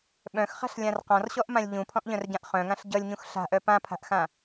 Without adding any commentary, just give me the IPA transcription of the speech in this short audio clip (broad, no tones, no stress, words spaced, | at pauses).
ɓœ̃xχa̤ɬlʲãr qɔ̃rɕɔʔmãlʲ ʎũpʰɔ̃ʔʎœ̃rɟãʔ χœ̃ŋãɬ ɟʌlʲɲũx ɬa̤ʔœ pãpʰa̤ʔxã